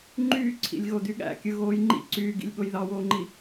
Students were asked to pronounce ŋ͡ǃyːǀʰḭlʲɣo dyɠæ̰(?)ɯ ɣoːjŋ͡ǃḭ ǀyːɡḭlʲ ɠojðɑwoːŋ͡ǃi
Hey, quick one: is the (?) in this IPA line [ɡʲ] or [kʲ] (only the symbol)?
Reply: kʲ